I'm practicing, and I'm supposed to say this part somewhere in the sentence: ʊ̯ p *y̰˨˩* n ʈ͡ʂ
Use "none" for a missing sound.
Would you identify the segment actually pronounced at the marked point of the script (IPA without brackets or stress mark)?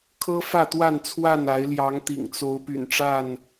y̰˨˩